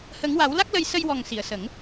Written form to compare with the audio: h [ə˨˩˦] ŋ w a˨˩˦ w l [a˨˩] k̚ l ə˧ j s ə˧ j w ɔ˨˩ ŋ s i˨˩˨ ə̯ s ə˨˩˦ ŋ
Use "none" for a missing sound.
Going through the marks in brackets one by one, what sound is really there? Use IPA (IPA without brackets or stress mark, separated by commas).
ə˨˩˦, a˦˥